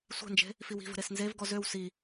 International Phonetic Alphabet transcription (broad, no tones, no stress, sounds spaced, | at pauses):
sʷ ɛ̤ n d͡ʒ e̤ | f i w i̤ v ə̤ ɾ e s n z e v ɡ ɔ z ø w s i